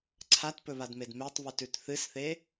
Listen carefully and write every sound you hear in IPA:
ǀʰ a t p ɵ β a d m e d m e tˤ β ʉ t ʉ t θ ɨ s θ e

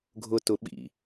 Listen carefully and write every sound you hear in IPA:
ɡʱ ʊ t ʊ ɓ ḭ

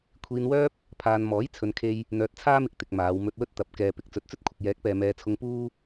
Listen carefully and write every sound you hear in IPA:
kʷʰ iː˧ n w œː˥ p̚ | pʰ aː˨ n m ɔː˨˥ j t͡sʰ ɵ˧ n kʰ e˥ j | n̪ œː˧ t̚ t͡sʰ aː˥ m ɪ˧ k̚ t̪ ɪ˨ k̚ m aː˨˧ w m ɵ˧ t̚ w ɵ˥ t̚ t̪ ɐ˨˥ p̚ k ɛː˨ p ɪ˨˥ k̚ t͡s ɵ˨˥ t̚ t͡s ɵ˥ t̚ kʷʰ ɪ˨ k̚ j ɛː˨˥ k̚ p ɛː˨ m ɛː˨ t͡sʰ ʊ˧ ŋ p uː˥

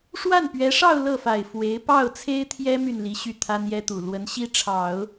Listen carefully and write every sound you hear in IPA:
ʂ w a˥˩ n p ɥ ɛ˧˥ ʂ ɑ˥˧ ʊ̯ l ɤ˥˩ f a˨˩ ɪ̯ f w e˧˥ ɪ̯ p ɑ˥˩ ʊ̯ t͡sʰ e˥ ɪ̯ t̪ʰ j ɛ˥ m y˥˩ n l i˧˥ ɕ y˥˩ t̪ʰ a˥ n j ɛ˥ t̪ u˨˩ l w ə˧˥ n ɕ i˥ ʈ͡ʂʰ ɑ˨˩˦ ʊ̯

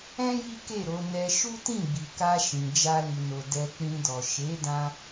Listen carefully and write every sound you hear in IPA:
ɛ̃˦ j i˦ k e˦˨ ɾ o˨˦ n ɛ˧ ʃ u˦ t ĩ˦˨ ɡ͡b i˨ k a˧ ʃ ĩ˨ d͡ʒ a˧ l i˨ n o˨ d ɛ˧ k͡p ĩ˧ d ɔ˨ ʃ e˨˦ d ã˧

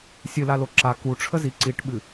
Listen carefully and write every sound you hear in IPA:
sʲ ɨ l a l o ǁ a k u ʈ͡ʂʰ ə z i ǀ i ʈ ɓ ɨ

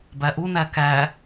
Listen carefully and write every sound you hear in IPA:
b æ ʔ u n æ k æ

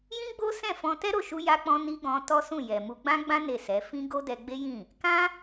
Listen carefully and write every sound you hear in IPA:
j ĩ˦ ɡ͡b o˦ s ɛ̃˦˨ f ɔ̃˧ t ɛ˦ ɾ o˦˨ ʃ u˧ j a˦ k͡p ɔ̃˦ n i˦ ɡ ɔ̃˧ t ɔ˦ s ũ˦˨ j ɛ˨ m u˧ ɡ͡b ã˦ ɡ͡b ã˦ n e˦˨ s ɛ˨˦ f ĩ˦ ɡ o˦ d ɛ˧ ɡ͡b e˦ j ĩ˦˨ | k ã˦

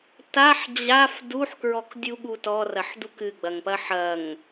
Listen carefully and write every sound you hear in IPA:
t a ħ d͡ʑ a f d u ħ k ɹ ɔ k dʲ u ɠ u t ɔ r ɐ ħ d u k ɨ ɡ͡b ɐ ŋ p ɐ ħ ɐ ŋ

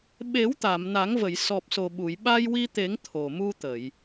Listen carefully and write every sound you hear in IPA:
ɓ e˨˩˦ w t̪ a˨˩˨ m n a˨˩˦ ŋ v ə˨˩˨ j s ɔ˨˩ p̚ s o˨˩ ɓ u˨˩˨ j ɓ a˧ j w i˧ t̪ e˨˩˦ ŋ t̪ʰ o˨˩ m u˧ t̪ ə˨˩˨ j

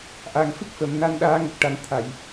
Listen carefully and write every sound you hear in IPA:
ʔ a˨˩ ŋ f ɨ˦˥ k̚ f ə˨˩˨ m n a˧ n ɗ aː˧˥ ŋ ə˨˩ k̚ ʈ a˨˩˦ n t̪ʰ a˨˩˨ j

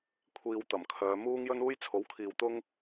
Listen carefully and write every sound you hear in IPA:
kʷʰ iː˧ w t̪ ɐ˨˩ m kʰ œː˨˧ m uː˥ ŋ j ɵ˥ n uː˥ j t͡sʰ o˨˥ w kʰ iː˨ w t̪ ʊ˥ ŋ

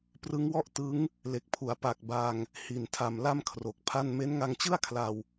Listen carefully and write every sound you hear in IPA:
p r ɯ˦˥ ŋ w ɔ˥˩ ʔ t ɯ˦˥ ŋ | l e˨˩ k̚ pʰ u˩˦ a̯ p a˨˩ k̚ b a˧ ŋ | h i˨˩ n tʰ a˨˩ m l a˥˩ m kʰ r o˨˩ k̚ pʰ a˥˩ n m e˦˥ n ŋ a˧ ŋ t͡ɕ ɯ˥˩ a̯ kʰ l a˧ w

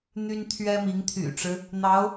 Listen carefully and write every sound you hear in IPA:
n̪ y˥ n t̪ʰ ɥ ɛ˥ m i˧˥ ŋ t̪ʰ y̰˨˩ ʈ͡ʂ ɻ̩˦ | n̪ ɑ˧˥ ʊ̯

